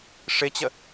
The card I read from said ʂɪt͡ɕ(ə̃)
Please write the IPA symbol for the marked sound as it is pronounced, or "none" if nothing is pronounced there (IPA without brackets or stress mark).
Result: ə